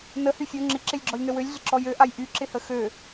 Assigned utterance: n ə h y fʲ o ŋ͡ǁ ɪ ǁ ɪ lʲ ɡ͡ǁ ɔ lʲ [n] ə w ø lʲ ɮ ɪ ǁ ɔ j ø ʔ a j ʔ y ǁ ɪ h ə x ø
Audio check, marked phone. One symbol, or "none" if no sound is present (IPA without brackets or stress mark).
n